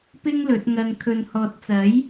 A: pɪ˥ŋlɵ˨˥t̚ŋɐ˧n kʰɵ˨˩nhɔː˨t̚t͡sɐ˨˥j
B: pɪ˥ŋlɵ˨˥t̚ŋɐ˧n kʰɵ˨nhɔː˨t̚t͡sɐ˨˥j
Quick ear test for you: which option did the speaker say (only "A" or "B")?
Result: B